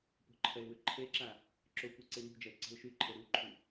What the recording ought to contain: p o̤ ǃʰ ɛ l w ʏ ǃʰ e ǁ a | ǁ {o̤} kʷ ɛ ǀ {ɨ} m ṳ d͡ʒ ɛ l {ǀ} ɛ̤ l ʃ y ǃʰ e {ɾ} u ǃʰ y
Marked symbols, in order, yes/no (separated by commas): no, no, yes, yes